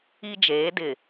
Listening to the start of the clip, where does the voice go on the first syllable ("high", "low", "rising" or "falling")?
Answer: high